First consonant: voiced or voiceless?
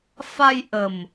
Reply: voiceless